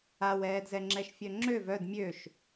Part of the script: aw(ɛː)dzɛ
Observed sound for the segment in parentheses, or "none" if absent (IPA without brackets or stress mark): ɛː